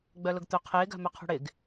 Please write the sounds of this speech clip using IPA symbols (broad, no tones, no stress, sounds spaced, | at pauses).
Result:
ɡ͡b œ l ʊ ɡ t̪ ɵ qʰ ɪː ɡ a̤ m œ qʰ ṳ ɽ ɪ ɡ